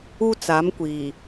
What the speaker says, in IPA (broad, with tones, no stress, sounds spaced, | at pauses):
u˦ t͡s a˨˦ m kʷ iː˨